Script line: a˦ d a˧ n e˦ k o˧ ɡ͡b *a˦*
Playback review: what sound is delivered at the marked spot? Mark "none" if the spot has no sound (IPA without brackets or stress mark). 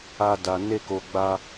a˦